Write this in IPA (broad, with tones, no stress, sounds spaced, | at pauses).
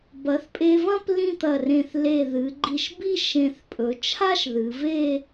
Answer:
b ɐ˩˧ θ pʼ e˧ v ɐ̃˥ p l ĩ˥˧ t̪ ɐ˧˩ r ẽ˧˩ θ l e˧˩ ð ɨ˩˧ ɡ͡ǃ i˧˩ ʃ b i˥˧ ʃ ẽ˧˩ θ pʼ ɵ˩˧ t͡ʃʰ a˥ ʃ ð ɨ˩˧ v e˥˧